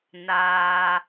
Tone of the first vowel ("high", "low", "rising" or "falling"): low